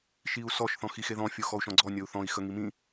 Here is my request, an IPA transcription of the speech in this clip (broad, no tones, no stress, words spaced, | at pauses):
ʃiu̯sɔʃ θɔ̃xixeðɔ̃ fʲoxɔu̯ʃɔ̃ɡ͡ǀɔ nʲɔu̯θɔ̃i̯ xəŋimĩ